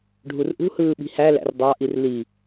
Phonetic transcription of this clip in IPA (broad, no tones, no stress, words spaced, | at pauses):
ɖʱurʔṳhɯː ɓi̤hælæ̰r dˤɑʔir li